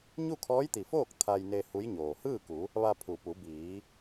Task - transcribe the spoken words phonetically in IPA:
ɲu˥˨kʰɔː˧˥jt̪i˩foː˥˨k̚ t̪ʰa˧jne˧ hu˧˥jɲoː˩ hɯː˥˨ku˩˧ | ʋa˧pʰu˩ pu˩˧biː˩˧

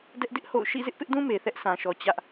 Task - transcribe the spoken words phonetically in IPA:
dɛ˦ʔ dɪ˦ʔ ho̰˦˨ʊ̯ ʃḭ˦˨zɪ˦ʔpɪ˦ʔdũ˦ me˨θɛ˦ʔ sã˨ʃɔ˨ t͡ɕä˦ʔ

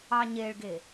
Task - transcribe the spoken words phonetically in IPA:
ɑɲeɭɡe

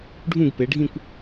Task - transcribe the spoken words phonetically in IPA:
ɖʱũ˥˧ɡpe˨˦ɖʱĩ˥˧kʷ

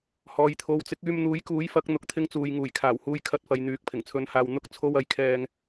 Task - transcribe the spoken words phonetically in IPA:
hɔː˨jt̪ʰo˨wt͡sɪ˨˥k̚ yː˧mn̪uː˨˥jkuː˨˥j fɐ˨˥k̚ n̪ʊ˨k̚t̪ʰɪ˧ŋt͡suː˨j ŋuː˨˩jkʰaː˨˩w huː˧jkʰɐ˧t̚fɐ˨j n̪yː˨˥k̚pʰɪ˨˩ŋt͡sʰɵ˧nhaː˧w n̪ʊ˧k̚t͡sʰo˧w ɐ˨˧jkʰɛː˧ŋ

